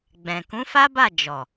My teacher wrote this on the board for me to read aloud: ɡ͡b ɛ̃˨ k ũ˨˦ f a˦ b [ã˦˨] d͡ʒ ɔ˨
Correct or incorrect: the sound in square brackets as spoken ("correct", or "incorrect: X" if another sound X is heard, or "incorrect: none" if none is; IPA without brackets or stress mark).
incorrect: a˦˨